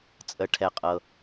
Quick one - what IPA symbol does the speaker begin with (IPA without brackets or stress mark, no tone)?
t͡sʼ